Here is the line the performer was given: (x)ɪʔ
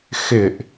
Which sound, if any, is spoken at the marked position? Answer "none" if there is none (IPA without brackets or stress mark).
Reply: x